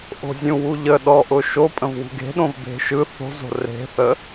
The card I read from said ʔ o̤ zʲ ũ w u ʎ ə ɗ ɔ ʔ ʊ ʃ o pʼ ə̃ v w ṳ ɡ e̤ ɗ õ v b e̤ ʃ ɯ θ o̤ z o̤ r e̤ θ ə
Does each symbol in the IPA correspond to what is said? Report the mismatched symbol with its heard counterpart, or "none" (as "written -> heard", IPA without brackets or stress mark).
none